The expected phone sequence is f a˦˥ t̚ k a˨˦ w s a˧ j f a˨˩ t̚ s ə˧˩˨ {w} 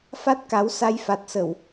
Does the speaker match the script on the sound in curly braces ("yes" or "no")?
yes